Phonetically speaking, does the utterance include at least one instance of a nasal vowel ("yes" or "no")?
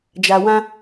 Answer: yes